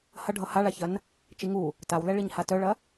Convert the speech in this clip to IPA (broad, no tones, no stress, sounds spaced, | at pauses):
h ɐ ɖʱ ʌ h a ɭ a ç ɐ n | t͡ʃ i ŋ u | t a w l ɛ ɭ i ɲ h a t œ ɭ ɐ